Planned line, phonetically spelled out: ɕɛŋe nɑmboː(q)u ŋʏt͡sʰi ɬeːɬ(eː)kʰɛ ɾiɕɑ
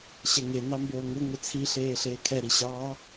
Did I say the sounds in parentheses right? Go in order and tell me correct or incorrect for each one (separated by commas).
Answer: incorrect, correct